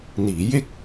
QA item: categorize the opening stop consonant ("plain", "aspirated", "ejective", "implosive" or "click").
plain